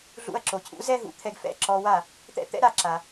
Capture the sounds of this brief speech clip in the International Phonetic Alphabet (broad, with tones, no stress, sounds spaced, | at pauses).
ɮ ṵ˧ ɐ̯ ǁ o˩ cʰ ṵ˩˥ z ɛ˥ ɦ ṵ˩˥ t̪ʰ ɛ˧ ɡ f ɛ̰˥˩ ǁ ɔ˧ w a˥˩ | t̪ ɛ̰˥˩ t̪ ɛ̰˥ ɾ a˥˩ ǁ a˩